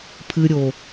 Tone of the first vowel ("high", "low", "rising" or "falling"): low